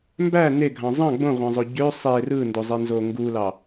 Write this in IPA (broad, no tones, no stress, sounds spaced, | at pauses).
m b æ n e ɡʱ ɑ̃ zˤ ɑ̃ ɡ͡b õ ʁʷ ɑ̃ zˤ o ɟ ø sˤ e r ɯ n d o zˤ e n z o ŋ ɡ u l ɑ